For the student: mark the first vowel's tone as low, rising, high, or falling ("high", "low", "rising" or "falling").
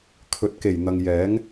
low